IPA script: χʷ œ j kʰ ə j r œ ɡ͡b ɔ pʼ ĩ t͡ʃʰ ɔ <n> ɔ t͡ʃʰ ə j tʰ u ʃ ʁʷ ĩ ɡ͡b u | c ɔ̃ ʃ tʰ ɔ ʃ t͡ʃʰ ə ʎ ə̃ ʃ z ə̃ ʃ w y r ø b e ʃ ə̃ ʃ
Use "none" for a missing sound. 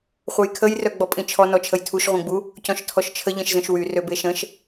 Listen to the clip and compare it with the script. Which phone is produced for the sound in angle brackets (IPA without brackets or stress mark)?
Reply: n